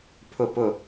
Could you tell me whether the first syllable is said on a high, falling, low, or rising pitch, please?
low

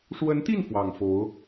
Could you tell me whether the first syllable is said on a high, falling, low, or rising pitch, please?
rising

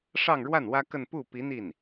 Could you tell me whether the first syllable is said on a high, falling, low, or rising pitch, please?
falling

